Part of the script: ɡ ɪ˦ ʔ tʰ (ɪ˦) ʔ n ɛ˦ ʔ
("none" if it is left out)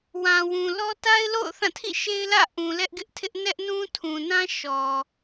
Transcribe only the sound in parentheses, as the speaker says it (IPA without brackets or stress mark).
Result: ɪ˦